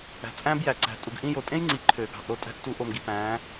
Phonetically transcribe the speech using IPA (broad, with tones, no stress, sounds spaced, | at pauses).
æ̤˨ t͡sʼ æ̃˦ b j æ˨ ǀ æ̤˨ tʼ u˨ ɡ ʔ ĩ˦ j o˨ tʼ ẽ˦ j ŋ͡ǀ i˨ ǃʰ ø˨ ɡ ɑ̤˨ ʔ ɾ o˦˨ tʼ æ̤˦ ʔ t u˨˦ ʔ o˨ m ɡ i˨ p æ̃˨˦